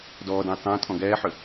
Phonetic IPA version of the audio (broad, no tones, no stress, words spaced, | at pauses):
dɔːdə̃j tˤɛ̃ tʼɔ̃ɡɛːħʏ